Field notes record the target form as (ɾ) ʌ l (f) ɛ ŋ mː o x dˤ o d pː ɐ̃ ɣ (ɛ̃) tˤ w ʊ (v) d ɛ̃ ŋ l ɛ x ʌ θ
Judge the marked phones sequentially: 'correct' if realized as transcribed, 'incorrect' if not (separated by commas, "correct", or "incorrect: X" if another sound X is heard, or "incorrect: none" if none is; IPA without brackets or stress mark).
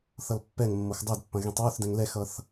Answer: incorrect: θ, incorrect: pː, correct, incorrect: θ